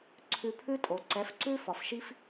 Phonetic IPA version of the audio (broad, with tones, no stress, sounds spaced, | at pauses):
ǀʰ ʉ˧ pʰ ʉ˦ tʼ o˨ ǀ ɛ˨˦ f ǀ ʉ˦ f ɒ˨ f ʃ i˦ f